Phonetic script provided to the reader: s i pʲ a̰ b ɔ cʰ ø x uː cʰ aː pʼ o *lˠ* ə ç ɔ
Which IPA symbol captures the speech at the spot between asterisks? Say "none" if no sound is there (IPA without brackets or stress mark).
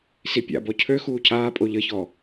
ʎ